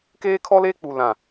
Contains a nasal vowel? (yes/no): yes